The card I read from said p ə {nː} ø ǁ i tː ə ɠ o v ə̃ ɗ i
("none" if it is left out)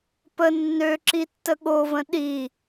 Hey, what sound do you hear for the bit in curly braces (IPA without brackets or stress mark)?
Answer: nː